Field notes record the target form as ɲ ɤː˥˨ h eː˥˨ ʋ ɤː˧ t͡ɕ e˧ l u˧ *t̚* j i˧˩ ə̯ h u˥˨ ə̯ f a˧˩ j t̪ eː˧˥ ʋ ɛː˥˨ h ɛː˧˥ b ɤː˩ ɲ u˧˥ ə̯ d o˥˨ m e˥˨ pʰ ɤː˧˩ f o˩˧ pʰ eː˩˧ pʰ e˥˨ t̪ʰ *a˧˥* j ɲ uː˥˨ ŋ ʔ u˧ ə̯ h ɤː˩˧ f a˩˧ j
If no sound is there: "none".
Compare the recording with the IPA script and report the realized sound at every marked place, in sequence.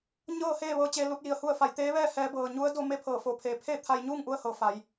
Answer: t̚, a˧

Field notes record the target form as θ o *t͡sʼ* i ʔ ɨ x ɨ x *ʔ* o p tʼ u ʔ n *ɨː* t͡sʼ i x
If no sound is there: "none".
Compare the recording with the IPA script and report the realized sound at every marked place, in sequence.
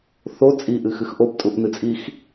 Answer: t͡sʼ, ʔ, ɨ

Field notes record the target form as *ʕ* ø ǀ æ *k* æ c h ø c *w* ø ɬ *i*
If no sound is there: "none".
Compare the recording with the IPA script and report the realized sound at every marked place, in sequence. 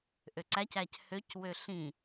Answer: ʔ, c, w, ĩ

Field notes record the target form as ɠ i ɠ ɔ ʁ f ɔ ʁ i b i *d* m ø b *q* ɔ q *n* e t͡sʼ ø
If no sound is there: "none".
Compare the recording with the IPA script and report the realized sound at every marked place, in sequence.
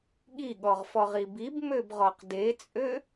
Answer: b, ʁ, d

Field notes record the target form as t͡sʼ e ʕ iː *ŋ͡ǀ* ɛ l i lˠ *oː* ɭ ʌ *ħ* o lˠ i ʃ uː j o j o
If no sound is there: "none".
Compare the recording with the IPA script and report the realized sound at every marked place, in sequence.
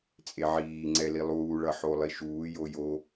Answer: ŋ͡ǀ, uː, ħ

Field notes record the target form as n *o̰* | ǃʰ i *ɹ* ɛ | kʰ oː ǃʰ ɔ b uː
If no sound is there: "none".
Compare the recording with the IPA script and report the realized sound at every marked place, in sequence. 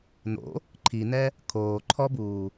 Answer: o̰, n

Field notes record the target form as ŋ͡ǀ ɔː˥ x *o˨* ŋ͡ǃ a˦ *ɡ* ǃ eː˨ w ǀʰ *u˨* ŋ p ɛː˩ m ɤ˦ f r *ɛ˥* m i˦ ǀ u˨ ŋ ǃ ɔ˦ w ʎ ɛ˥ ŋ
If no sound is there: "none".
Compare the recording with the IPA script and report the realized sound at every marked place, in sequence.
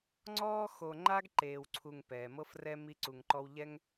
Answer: o˨, ɡ, u˨, ɛ˦

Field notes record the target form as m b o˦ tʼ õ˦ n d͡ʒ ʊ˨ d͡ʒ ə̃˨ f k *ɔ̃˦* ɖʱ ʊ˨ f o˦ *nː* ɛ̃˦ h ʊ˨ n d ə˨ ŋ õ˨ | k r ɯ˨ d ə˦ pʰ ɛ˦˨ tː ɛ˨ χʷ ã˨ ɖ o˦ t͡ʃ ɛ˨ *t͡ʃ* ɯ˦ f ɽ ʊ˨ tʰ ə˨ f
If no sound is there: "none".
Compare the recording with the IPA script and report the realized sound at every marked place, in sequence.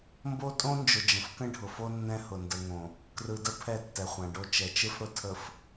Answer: ə̃˦, nː, t͡ʃ

